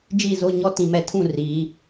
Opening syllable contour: falling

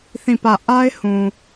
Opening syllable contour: falling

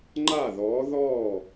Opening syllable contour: falling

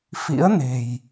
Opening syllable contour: rising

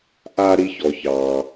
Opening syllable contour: high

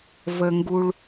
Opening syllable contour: low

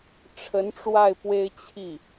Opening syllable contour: rising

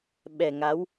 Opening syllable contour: low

